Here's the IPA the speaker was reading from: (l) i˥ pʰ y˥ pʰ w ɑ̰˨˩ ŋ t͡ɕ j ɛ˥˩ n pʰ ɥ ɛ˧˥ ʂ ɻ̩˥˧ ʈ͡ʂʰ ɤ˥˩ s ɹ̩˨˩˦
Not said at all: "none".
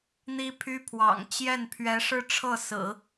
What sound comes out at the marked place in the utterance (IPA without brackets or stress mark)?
n̪